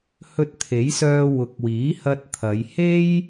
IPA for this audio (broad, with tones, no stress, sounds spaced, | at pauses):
h ɵ˧ t̚ t̪ʰ e˨˥ j s œː˧ w ʊ˨˥ k̚ w iː˨˥ h ɐ˧ t̚ t̪ʰ ɐ˨˧ j h e˥ j